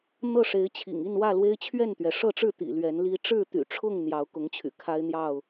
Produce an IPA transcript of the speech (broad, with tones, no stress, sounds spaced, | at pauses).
n̪ ɤ˥˨ ʂ e˨˦ ɪ̯ t͡ɕʰ ḭ˨˩ ŋ i˥˨ n w ä˥˨ l w e˦ ɪ̯ t͡ɕʰ ɥ ɛ˥˨ n t̪ ɥ ɛ˩ ʂ ɤ˥˨ ʈ͡ʂ ɻ̩˥˨ t̪ ḭ˨˩ l ɥ ɛ˨˦ n l i˦ ʈ͡ʂ ɻ̩˥˨ t̪ y̰˨˩ ʈ͡ʂʰ ʊ˥˨ ŋ n̪ j ɑ˨˦ ʊ̯ k ʊ˨˦ ŋ t͡ɕʰ y̰˨˩ kʰ a˦ ɪ̯ n̪ j ɑ˥˨ ʊ̯